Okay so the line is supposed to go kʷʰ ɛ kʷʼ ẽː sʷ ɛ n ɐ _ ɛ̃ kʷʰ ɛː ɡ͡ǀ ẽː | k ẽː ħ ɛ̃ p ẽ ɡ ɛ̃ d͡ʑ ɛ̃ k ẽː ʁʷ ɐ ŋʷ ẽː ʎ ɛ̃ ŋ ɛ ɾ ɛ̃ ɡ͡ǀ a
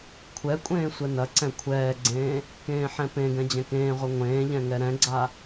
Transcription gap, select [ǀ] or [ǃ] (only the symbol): ǀ